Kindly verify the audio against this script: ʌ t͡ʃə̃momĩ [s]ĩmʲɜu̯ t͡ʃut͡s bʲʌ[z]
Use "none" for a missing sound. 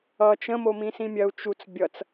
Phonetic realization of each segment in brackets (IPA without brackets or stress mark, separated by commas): s, t͡s